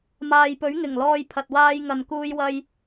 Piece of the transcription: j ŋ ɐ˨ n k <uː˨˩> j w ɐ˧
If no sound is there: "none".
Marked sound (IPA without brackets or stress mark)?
uː˧